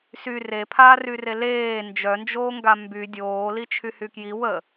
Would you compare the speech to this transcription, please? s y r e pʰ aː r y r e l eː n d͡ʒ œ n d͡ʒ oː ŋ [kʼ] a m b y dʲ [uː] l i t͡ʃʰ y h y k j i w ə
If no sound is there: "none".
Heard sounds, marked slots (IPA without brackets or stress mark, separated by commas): ɡ, oː